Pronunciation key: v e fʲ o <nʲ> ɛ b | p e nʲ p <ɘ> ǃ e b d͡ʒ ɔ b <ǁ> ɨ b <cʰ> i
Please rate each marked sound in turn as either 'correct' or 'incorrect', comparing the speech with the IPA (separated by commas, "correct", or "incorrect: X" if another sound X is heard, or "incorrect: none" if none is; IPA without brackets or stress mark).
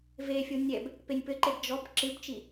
correct, correct, correct, incorrect: t͡ʃ